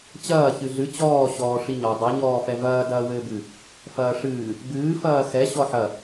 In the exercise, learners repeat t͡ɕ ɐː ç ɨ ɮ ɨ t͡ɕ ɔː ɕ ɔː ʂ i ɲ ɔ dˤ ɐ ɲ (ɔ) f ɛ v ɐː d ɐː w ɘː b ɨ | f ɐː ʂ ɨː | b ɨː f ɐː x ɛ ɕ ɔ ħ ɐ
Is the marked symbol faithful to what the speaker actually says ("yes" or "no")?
no